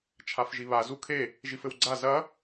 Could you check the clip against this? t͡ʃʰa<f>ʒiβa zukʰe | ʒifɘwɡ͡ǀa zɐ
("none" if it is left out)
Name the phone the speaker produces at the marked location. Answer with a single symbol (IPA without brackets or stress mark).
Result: f